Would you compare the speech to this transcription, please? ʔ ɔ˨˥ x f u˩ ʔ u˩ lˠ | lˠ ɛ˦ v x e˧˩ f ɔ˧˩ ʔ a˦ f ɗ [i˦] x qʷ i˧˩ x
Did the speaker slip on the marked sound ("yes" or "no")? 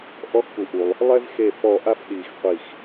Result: yes